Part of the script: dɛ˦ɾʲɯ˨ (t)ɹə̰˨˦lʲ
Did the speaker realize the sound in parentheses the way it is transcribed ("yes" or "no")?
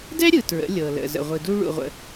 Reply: yes